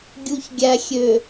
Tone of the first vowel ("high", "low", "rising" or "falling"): low